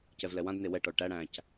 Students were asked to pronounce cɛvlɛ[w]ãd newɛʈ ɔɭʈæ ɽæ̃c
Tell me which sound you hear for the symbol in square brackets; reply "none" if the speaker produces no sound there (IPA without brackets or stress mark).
w